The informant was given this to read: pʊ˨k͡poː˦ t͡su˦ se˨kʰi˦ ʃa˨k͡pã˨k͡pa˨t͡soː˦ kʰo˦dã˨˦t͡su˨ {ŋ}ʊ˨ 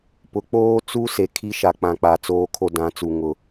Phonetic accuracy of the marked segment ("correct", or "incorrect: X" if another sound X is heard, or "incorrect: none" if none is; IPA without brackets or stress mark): correct